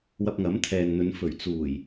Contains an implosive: no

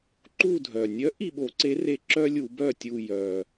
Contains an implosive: yes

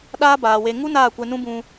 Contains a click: no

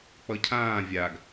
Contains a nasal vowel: yes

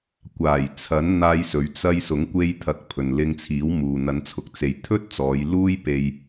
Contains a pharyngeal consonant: no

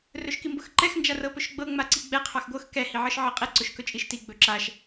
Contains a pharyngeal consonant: yes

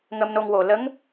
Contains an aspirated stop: no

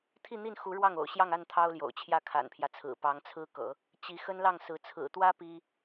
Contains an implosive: no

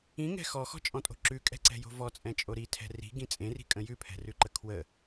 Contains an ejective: yes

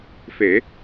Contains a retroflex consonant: no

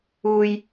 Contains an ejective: no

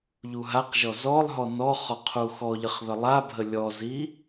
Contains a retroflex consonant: no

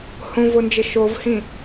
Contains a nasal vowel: yes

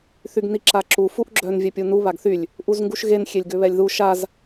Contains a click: yes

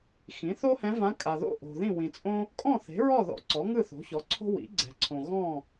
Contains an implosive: no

